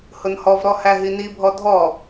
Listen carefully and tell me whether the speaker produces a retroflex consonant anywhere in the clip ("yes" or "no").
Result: no